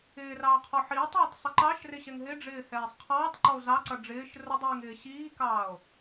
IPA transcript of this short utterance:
ɪː r ɑː qʰ ɔ ħ iː tˤ ʌː tˤ sˤ ɪ ǃ ɑ ʃ r ɪ ɕ ɛ ŋ ɦ ɪ ɖ͡ʐ ɪː h ɛː sˤ qʰ ɑː tˤ ǃ ɔ o̯ z ɑ ǀ ʌ ɖ͡ʐ ɪː ʃ r ʊ dˤ iː ŋ ɪː ɕ iː k ɑː o̯

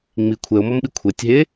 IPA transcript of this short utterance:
ŋ͡m i kʷʰ ɛ o̯ m ɔ m ɓ i kʷʰ ɛ tʲ ɦ e

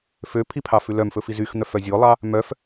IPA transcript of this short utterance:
f ø pʰ i pʰ ɑ f ʉ l œ m f ɵ f i z y x n̪ œ f œ zʲ o lˠ ɑ | m œ f

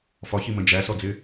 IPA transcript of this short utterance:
f ɒ ç i m ə̃ d͡ʒ æ s ɔ d͡z ɪ

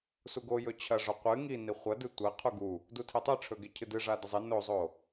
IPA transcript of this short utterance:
s u ɡ o j ɵ t͡ɕʰ ɐ ʐ o qʷ ɨ ŋ i n i χʷ ɐ d ɨ tʷ ɐ qʰ u ɡ u | d u tʰ e tˤ ɨ ʈ͡ʂʰ ɵ ɡ e cʰ ɨ d ɨ ʐ a d ɐ zˤ e n o zˤ o

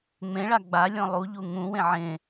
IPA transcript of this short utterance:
ŋ͡m ẽ ɭ a ɡ͡b a lʲ ɔ̃ lˠ u ʎ u ŋ ũ w ẽ ʕ ẽ

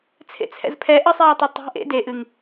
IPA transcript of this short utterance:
t͡sʰ ḛ t͡sʰ ɛ̰ z pʰ ɛ ʔ ə sˤ ɛː tˤ e tˤ e̤ ʔ ḛ d e ʔ ɨ ŋ

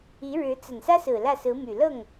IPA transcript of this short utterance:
i˧˥ ɻ ɻ̩˧˥ t͡s ə˨˩ n s ä˥ s ɹ̩˨˩ l ä˥˩ s ɹ̩˧˥ m y˨˩ l ɤ˥˩ ŋ

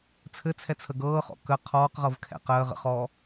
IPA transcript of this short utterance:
t͡sʰ ɘ t͡sʰ ɛ t͡sʰ ə ɡ ɤː χ ɔ̰ k ə qʰ ɔː q ʁ ɤ v kʰ ɛ̰ q əː ʁ ə̰ χ ɔː

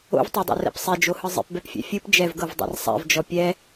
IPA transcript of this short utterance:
o̰ v tˤ a dˤ o̰ r ɛ̰ p sˤ e d͡ʒ o h ɯ zˤ ḭ p b ɛ p fʲ ɛ̰ fʲ ɯ p d͡ʒ ɛ v ɡ ɤ v dˤ a̰ r sˤ ɛ̰ v d͡ʒ ɔ pʲ ɛ

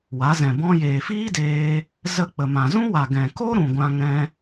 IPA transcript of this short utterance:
w a˨˦ z ɛ̃˨ b ɔ̃˧ j eː˨ f iː˦ d eː˧ | z ə˧ k͡p ə˨ m ã˨ z ũ˦ w a˨ ɡ ɛ̃˨ k o˦ ɾ ũ˨ ɡʷ ã˧ ŋ ɛ̃˧

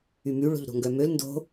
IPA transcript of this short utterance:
y m y ɭ o̤ ʎ ɾ o̤ ŋ ɡ œ m ø l n d o̤

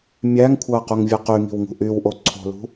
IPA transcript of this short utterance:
mʲ æ ŋ kʷʰ ɑ ɐ̯ q u ŋ vʲ ɯ q y ŋ i̤ w ŋ ṳ ʔ y w ʔ o ǀʰ o̤ l ṳ

